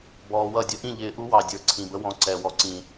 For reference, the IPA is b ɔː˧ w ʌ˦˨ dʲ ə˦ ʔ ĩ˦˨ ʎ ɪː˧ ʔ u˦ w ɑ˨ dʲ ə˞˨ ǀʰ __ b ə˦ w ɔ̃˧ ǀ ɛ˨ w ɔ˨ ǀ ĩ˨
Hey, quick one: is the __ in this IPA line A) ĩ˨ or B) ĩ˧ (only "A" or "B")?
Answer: A